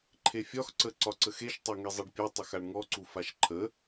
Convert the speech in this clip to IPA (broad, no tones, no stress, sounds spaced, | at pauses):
ǃʰ e fʲ ɒ x ǀ ə ǀ ɒ ǀ ə x e ʃ tˤ a ŋ e zˤ e ɖ pʲ a tˤ ə x a ɳ ŋ ɔ ǀ u f a ʃ ǃʰ ə